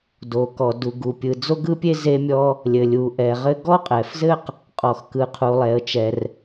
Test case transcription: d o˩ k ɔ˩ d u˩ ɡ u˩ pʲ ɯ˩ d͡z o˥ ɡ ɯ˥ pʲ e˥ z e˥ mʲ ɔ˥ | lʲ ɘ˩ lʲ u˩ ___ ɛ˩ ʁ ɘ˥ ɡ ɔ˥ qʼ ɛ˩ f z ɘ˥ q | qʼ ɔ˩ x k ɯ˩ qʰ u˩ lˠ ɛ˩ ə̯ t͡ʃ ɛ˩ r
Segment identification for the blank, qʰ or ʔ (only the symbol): ʔ